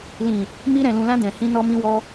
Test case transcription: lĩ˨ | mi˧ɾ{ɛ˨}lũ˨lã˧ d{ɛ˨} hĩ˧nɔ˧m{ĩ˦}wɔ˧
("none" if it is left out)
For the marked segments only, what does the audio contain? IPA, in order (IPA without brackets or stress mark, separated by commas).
ɛ̃˨, ɛ̃˨, ĩ˧